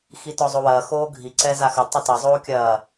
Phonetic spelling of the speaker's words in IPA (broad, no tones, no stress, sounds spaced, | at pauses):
x i t ɔ zˤ o w ɐː x oː ɡʱ i ǀ ɛ z a x ɘ tˤ ɐ t ɐ zˤ oː kʲ ɐː